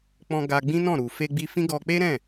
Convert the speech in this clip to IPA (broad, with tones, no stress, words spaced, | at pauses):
k͡pɔ̃˧ɡa˧ɡ͡bĩ˦nɔ̃˦˨ ɾu˨ fe˧ɡ͡bi˧fĩ˦ɡɔ˧ k͡pe˦ɾɛ̃˦˨